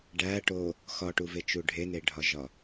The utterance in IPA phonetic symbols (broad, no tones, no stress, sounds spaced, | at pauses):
ɖ æ ʈ o | x ɒ ʈ u v e t͡ʃ u ɖʱ e n e ɖʱ ɒ ʒ ɒ